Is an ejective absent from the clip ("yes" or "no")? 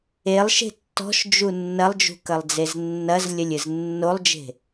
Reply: yes